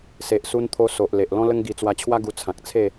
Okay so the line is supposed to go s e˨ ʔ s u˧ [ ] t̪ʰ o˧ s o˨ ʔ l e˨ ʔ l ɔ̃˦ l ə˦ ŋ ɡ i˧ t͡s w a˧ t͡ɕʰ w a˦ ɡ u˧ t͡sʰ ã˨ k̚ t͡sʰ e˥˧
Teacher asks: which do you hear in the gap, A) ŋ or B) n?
B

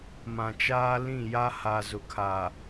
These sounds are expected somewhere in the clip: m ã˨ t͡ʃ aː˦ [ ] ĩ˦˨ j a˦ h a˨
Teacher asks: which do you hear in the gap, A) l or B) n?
A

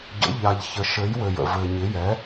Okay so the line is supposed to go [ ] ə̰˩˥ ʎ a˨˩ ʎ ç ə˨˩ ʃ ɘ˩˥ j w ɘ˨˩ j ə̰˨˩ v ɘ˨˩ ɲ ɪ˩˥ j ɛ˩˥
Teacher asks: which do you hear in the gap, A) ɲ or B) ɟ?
B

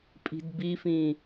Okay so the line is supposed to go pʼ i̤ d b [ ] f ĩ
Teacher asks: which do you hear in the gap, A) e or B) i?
B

